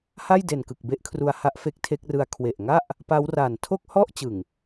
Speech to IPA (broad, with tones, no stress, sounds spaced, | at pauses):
h a˥˩ j d e˨˩ n k ɯ˨˩ k̚ b e˦˥ ʔ kʰ r u˧ a̯ h a˦˥ ʔ f e˦˥ k̚ tʰ e˦˥ k̚ r ɯ˦˥ a̯ kʰ w e˨˩ ʔ ŋ a˥˩ ʔ | p a˦˥ w r a˨˩ n tʰ o˥˩ k̚ h ɔ˥˩ ʔ t͡ɕ ɯ˨˩ ŋ